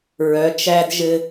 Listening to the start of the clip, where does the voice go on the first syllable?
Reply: rising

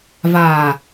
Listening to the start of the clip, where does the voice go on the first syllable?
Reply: low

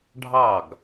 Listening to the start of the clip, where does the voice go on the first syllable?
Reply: falling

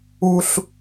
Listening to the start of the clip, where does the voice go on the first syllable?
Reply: high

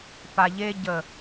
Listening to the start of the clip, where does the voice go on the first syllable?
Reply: low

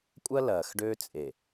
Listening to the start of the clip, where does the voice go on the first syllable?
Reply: high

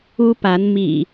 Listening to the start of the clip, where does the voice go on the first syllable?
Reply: high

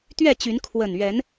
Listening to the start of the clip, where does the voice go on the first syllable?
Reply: falling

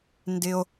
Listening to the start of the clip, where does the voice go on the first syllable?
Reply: high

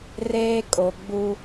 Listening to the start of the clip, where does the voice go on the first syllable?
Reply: high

